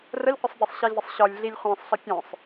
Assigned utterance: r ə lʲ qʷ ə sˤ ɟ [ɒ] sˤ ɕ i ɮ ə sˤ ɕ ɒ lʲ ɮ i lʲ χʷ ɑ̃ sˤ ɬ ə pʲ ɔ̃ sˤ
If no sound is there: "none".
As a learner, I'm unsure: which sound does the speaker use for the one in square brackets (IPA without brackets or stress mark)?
ɑ